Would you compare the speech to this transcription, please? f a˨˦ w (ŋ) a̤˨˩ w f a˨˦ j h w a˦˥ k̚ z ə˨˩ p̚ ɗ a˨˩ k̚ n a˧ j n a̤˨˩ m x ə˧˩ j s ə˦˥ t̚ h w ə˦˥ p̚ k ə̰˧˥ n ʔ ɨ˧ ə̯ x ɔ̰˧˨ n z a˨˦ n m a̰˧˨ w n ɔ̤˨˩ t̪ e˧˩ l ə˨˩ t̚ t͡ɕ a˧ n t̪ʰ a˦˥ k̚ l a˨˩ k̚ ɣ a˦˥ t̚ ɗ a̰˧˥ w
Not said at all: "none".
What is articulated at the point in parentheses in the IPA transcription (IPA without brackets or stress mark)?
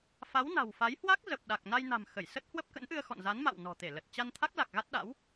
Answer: n